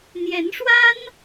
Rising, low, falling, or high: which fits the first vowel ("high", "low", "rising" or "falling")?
rising